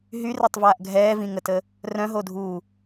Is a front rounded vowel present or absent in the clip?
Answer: present